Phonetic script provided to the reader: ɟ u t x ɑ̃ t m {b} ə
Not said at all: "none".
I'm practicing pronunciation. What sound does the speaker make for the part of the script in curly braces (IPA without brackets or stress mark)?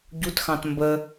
b